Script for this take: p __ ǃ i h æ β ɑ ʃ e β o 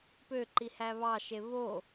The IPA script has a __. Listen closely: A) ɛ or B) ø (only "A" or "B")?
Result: B